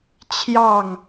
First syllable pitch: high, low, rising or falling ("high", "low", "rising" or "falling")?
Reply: falling